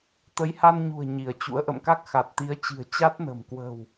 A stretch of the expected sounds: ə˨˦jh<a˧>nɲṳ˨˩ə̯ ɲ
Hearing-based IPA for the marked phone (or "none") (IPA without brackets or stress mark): a˧